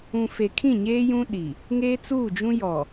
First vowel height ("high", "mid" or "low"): high